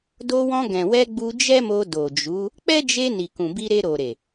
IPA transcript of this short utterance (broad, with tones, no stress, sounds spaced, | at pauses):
d o˧ w ɔ̃˧ ɡ ɛ̃˨ w ɛ˧ ɡ͡b u˧ d͡ʒ ɛ˦ m o˧ d o˨ d͡ʒ u˨˦ | k͡p ɛ˦ d͡ʒ e˧ n i˨ k ũ˨ b i˧ ɾ e˧ ɾ o˨ ɾ e˨